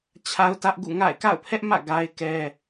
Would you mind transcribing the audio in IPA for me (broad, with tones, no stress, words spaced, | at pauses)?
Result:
t͡ɕʰa˦ʊ̯tä˦ʔ ɡṵ˦˨ŋa̰˦˨ɪ̯ ka̰˦˨ʊ̯pʰɛ˦ʔmä̰˦˨ ɡa˦ɪ̯kɛ˦